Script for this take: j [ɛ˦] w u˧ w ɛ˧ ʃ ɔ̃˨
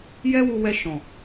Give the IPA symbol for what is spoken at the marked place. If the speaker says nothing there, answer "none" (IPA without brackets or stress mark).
ɛ˦